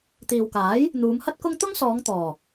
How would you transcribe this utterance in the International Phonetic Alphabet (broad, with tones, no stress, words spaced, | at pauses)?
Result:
t̪iː˨wkaː˨˥j | n̪uː˨˧m hɐ˥t̚kʊ˥ŋ t̪ʊ˥ŋsɔː˨˧ŋ t̪ɔː˨˩